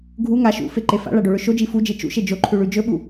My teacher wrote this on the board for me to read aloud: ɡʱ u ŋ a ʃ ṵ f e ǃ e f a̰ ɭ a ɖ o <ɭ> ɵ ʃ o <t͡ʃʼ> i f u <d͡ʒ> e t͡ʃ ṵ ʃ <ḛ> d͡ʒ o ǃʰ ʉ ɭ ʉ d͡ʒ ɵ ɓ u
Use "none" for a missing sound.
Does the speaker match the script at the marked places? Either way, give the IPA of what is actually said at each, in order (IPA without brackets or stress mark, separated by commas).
ɭ, d͡ʒ, d͡ʒ, e